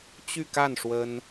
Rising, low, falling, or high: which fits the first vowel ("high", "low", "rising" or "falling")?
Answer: falling